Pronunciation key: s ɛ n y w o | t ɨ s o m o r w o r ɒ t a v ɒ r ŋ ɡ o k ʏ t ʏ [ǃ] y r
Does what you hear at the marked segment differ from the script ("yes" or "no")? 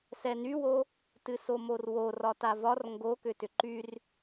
no